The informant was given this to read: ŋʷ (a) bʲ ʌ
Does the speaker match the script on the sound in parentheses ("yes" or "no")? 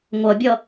no